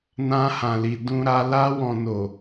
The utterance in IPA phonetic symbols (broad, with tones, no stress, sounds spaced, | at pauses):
n ã˧ h ã˨ l i˨ d ũ˧ ɾ a˧ l a˧ w ɔ̃˨ n o˨